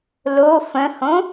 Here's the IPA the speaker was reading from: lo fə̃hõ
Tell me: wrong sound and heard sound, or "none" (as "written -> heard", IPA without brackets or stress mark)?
none